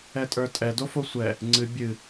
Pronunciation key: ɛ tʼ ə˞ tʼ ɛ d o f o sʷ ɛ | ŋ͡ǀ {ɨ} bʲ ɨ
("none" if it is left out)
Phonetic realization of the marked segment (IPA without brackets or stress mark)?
ɨ